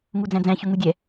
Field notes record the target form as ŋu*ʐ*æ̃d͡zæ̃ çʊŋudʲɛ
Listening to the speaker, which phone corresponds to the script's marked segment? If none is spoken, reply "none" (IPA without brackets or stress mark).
d͡z